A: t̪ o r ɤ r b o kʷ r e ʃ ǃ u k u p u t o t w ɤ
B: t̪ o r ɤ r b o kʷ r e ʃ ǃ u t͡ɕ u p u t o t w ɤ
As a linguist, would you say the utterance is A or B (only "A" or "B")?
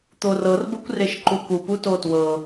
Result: A